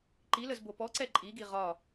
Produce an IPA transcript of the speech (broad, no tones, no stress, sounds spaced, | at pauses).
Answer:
ǃ i l ə z b o p ɔ ǀ ɛ ǃʼ i ɡ i ʁ ɒ